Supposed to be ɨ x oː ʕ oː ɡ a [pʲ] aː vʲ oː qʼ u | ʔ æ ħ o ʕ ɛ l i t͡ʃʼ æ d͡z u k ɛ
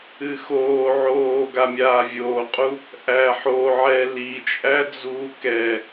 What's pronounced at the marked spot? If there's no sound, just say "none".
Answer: mʲ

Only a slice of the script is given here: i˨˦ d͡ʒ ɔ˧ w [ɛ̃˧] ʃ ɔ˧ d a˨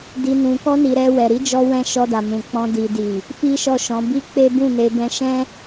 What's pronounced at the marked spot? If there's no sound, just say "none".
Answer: ɛ̃˧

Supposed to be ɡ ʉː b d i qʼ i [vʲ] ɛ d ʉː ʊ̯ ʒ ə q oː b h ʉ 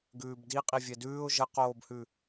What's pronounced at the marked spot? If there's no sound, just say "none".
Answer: vʲ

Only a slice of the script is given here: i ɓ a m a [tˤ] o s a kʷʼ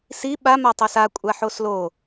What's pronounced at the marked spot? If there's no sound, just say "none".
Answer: tˤ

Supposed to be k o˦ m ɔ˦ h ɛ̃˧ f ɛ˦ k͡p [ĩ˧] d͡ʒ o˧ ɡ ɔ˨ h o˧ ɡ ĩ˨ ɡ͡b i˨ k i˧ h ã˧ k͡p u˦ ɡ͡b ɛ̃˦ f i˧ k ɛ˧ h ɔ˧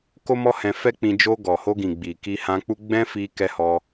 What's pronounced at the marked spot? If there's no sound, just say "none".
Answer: ĩ˧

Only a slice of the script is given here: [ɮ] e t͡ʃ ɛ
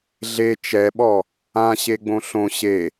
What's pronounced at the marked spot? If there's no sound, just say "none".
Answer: ɮ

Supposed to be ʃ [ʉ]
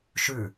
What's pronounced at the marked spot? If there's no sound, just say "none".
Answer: ʉ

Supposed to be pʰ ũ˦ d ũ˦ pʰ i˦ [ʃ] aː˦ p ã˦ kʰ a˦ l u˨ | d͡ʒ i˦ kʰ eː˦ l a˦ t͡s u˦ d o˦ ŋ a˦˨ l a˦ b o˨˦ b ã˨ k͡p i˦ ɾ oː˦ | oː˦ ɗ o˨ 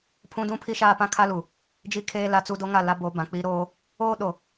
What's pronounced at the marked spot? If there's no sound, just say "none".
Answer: ʃ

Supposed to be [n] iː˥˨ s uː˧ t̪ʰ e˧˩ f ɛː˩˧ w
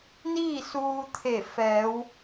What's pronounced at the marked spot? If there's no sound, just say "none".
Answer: n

